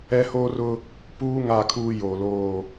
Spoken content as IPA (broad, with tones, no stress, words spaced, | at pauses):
ɛ˦hoː˦rʊ˦ | puː˦ ŋa˦˨kʰuː˦ joː˨loː˦˨